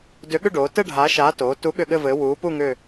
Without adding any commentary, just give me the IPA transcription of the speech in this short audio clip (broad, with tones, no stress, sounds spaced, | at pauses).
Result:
d ʏ˨˥ ɠ ʏ˥˧ ɖ oː˩˧ t ɘ˥˧ ɖʱ aː˨˥ ʃ aː˨˥ t oː˩˧ t u˨˥ ɠ ʏ˥˧ ɠ ɘ˥˧ v ɘː˨˥ w uː˨˥ p u˥˧ ŋ ʏ˥˧